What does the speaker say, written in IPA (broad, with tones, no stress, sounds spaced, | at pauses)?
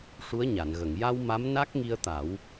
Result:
ʂ u˧˥ ə̯ ɲ a˨˩˨ n ɣ ə˨˩˨ ŋ j a˧ w m a˧˥ m n a˦˥ k̚ ŋ i˧ ə̯ t̪ a˨˩˦ w